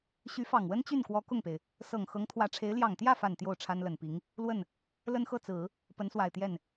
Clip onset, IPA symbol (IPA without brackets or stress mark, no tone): ɕ